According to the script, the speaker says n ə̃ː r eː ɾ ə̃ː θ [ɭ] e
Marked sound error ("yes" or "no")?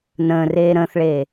no